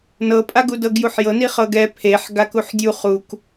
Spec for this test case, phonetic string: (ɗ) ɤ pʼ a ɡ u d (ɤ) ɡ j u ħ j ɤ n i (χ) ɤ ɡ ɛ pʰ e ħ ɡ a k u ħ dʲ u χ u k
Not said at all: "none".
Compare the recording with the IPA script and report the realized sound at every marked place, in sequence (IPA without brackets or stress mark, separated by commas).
n, ɤ, χ